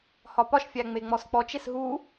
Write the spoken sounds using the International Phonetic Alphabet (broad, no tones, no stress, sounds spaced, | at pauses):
h ɒ p ɒ ʃ fʲ æ ŋ͡m e ŋ͡m ɔ s k͡p ɔ t͡ʃ e s ɦ u